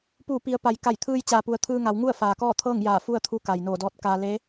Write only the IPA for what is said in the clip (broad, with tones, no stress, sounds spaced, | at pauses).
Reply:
p uː˧˩ p i˩˧ ə̯ p a˩ j k a˧˩ j t̪ʰ ɯː˧ j t͡ɕ aː˩ p u˩ ə̯ t̪ʰ ɯː˧ ŋ a˩˧ w ŋ u˥˨ ə̯ f aː˩ k ɔː˥˨ t̪ʰ ɤː˥˨ ŋ j aː˧˩ f u˥˨ ə̯ t̪ʰ u˧ k a˩ j n oː˧˩ d ɔː˧˥ t̚ k aː˧ l e˧˥